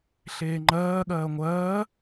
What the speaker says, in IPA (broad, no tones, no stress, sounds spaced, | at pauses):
ɬ eː ŋ͡ǃ ɜː ɠ ɜː ŋʷ ɜː